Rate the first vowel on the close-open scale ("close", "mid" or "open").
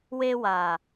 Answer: mid